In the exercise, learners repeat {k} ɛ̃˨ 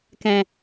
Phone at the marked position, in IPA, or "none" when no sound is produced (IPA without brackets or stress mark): k